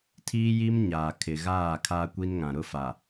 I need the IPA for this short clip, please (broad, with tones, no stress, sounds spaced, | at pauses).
tʰ iː˦ j i˦ m ɲ aː˨ kʰ ɪ˨ ɣ aː˦˨ kʰ aː˦ kʷ i˦ n ŋ ã˨ ɾ ʊ˦˨ f a˨